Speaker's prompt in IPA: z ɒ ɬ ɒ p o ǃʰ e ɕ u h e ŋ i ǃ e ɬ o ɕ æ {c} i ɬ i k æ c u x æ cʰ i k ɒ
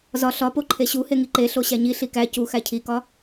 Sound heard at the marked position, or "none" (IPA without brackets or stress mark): ɲ